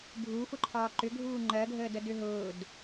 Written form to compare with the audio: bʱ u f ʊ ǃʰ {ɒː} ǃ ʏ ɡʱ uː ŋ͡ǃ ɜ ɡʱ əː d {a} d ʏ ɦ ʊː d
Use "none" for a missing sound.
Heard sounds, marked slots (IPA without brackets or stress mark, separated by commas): ɒː, ə